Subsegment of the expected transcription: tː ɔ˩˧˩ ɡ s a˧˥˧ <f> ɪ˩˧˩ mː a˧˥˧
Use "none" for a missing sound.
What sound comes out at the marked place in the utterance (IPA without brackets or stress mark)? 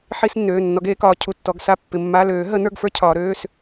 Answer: pː